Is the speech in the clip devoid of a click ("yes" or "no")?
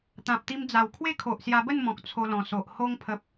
yes